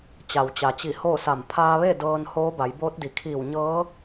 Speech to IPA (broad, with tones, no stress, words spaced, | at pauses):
t͡ɕa˩wt͡ɕa˩t͡ɕi˧˩ hoː˥˨sa˧˩m pʰaː˧ʋe˥˨ dɤː˧n hoː˧˥ba˩˧jboː˧˥t̚di˩ kʰiː˧˩wɲɤː˧˥